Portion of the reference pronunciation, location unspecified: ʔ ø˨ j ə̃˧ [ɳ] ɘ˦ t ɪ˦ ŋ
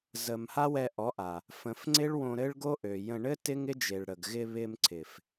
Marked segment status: correct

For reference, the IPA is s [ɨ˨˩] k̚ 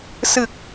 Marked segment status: correct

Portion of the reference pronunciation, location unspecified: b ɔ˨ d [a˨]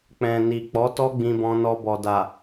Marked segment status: correct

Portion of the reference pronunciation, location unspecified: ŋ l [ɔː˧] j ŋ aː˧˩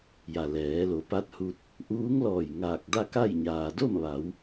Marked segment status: incorrect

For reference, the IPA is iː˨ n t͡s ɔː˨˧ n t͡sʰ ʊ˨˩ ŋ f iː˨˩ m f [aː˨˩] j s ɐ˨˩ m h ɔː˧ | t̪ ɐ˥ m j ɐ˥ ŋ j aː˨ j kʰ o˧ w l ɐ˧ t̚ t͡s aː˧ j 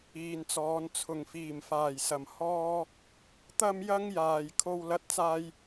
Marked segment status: correct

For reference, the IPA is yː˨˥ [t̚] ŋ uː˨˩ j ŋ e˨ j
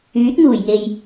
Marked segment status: correct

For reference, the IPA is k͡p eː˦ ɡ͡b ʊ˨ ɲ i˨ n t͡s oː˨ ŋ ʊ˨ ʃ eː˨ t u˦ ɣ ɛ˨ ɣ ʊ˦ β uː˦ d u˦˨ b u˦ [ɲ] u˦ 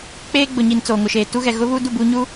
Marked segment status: correct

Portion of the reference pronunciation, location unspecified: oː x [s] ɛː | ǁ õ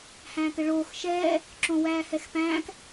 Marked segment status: incorrect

